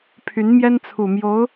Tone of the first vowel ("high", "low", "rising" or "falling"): rising